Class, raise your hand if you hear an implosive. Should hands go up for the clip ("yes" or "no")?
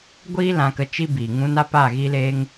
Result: no